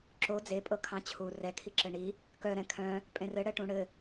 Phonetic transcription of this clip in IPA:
ǁ o d͡z e pʼ ɤ kʰ ɑ̃ t͡ɕʰ u r ɛ kʰ i ǁ ɘ ɳ i | k œ ɾ ɛ̃ kʰ œ̃ | pʼ ẽ r ɘ ɽ ɛ ʈ ũ ɽ ɘ

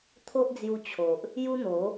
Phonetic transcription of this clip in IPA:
t̪ʰ o˦ ʔ d͡z j u˧ t͡ɕʰ o˨ ʔ | j u˦ n̪ o˨˦

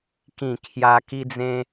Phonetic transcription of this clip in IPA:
k ĩ˨˩ kʰ j a˧ k i˧ d͡z ẽ˧

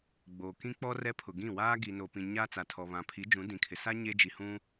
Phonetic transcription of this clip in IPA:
ɡ͡b oː˨ k ĩ˦ k͡p ɔ˦ r ɛ˦ pʰ ʊ˨ ɡ ĩ˦˨ w aː˦ ɡ i˨ n o˨ p ĩ˨ ɲ aː˦ t͡s a˨ tʰ ɔ˨ β ã˨ pʰ i˨˦ d͡ʒ ũ˨˦ d ĩ˨ kʰ ɪ˨ s a˦ ɲ e˦ d͡ʒ i˨ h ũ˦

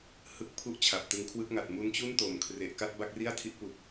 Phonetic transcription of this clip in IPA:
h ɯ˥˩ k̚ pʰ u˥˩ ʔ t͡ɕʰ a˨˩ p̚ t ɯ˧ ŋ kʰ w ɯ˥˩ k̚ ŋ a˨˩ t̚ m u˦˥ n t͡ɕ u˥˩ n t o˨˩ m kʰ r e˨˩ ʔ k a˥˩ t̚ b a˥˩ k̚ r i˥˩ a̯ tʰ i˦˥ ʔ p u˨˩ k̚

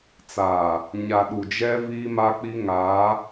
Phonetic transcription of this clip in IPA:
t͡s aː˨ | ɲ a˨ ɗ u˨ d͡ʒ ɛ˦ v iː˦ m a˦ k͡p i˦ ŋ aː˨˦

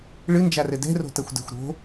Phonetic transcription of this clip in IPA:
ɭ ɨ n d͡ʒ a r ɘ d ɛ̤ r o̤ t ɐ xʷ d ɛ̤ xʷ ɾ o̤

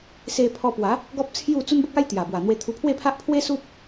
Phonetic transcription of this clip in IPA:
s e˧ pʰ ɔ˧ p w a˨˦ | ɡ ɔ˦ p̚ t͡sʰ j u˥˧ t͡s u˦ n b ə˦ k̚ a˦ j t̪ j a˨˩ b w a˨˩ n̪ w e˧ t̪ʰ u˧ pʰ w e˥˧ pʰ a˦ ʔ pʰ w e˦ s u˦ p̚

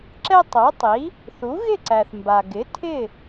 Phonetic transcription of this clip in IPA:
ǁ ɛ˧ tˤ o˩˥ tˤ i˩˥ | θ u˩˥ ɣ ɪ˥˩ ǀ æ˩ θ m b a˩ ɡ ɪ˩˥ tʰ ɪ˥˩

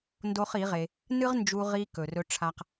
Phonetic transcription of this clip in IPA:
n d o˦ χ i˨˦ ʁ e˧ | n ɨ˦ ʁ n d͡ʒ u˧ ʁ i˧ k ɵ˨ r ɵ˦ ʈ͡ʂʰ a˦ q

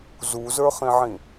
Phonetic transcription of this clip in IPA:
z u z ə˞ χ ĩ ʕ ĩ

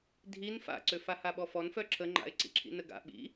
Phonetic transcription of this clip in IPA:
dʱ i n f a̰ ǀ ø f a h a ɓ ɔ f ɔ n f œ ǁʰ ə ŋ͡ǃ a̰ ɪ̯ ǀ ḭ ǁʰ ḭ n ə ɡ a̰ ɓ ḭ

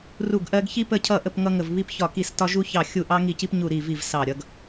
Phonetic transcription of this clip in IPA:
r u˧˩ ɡ ʔ ɜ˧ ɡ ç i˧ p ə˧˩ cʰ ʌ˧˩ ʔ ə˧˩ p ŋ ʌ˧ ŋ ə˧˩ v β i˧ p ç ɒ˧˩ k i˧˩ s t ɒ˧ ʒ u˧ ç ɑ˧˩ xʲ u˧˩ ʔ ɑ˧ ŋ i˧˩ c i˧ p ɲ u˧˩ ɾ i˧˩ v i˧˩ v s ɑ˧˩ ɾʲ ʌ˧ ɡ

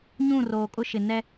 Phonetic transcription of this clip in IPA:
ɲ ũ˦˨ r oː˨ kʼ ʊ˦ ʃ ɪ˨ n ɛ˦

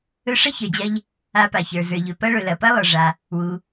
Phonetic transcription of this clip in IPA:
ɵ˧ ʂ ɐ˥ ç ə˞˩ d͡ʑ ɐ˧ ʎ | a˧ p a˩ ç ə˞˩ z ə˞˩ ʎ ɵ˩ p ɐ˧ ɭ ɵ˩ l ɐ˩ p ɐ˥ lˠ ə˞˩ ʐ a˩ | w u˩

